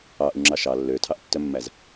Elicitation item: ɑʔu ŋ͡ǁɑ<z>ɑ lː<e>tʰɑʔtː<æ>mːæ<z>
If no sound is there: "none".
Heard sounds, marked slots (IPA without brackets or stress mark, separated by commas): ʃ, ø, œ, z